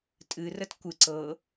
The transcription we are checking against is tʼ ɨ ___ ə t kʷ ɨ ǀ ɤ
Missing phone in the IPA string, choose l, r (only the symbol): r